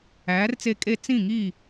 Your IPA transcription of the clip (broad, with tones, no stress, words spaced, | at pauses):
æː˨˥rt͡se˦kʼe˥˨ t͡sĩ˥˨ŋi˥˨